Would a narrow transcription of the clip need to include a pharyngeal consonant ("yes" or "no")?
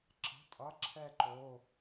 no